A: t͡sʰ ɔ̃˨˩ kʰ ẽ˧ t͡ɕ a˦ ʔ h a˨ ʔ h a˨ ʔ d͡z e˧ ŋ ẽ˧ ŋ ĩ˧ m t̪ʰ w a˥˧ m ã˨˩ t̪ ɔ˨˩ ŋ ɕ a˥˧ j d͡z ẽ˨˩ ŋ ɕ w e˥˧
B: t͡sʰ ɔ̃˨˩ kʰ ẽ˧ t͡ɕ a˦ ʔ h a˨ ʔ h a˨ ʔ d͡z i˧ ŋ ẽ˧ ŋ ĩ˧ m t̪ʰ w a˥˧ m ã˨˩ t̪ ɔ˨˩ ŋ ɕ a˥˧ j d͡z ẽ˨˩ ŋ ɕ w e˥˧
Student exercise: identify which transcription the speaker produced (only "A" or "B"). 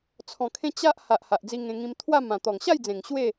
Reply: B